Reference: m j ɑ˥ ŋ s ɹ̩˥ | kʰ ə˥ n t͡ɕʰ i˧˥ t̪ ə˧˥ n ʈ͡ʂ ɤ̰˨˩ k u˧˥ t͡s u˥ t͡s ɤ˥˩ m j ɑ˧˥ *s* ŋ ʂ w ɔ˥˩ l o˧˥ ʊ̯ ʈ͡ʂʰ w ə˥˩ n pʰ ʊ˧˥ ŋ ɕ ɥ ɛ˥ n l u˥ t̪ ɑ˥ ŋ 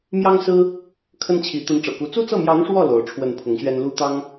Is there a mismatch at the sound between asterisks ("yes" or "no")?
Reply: yes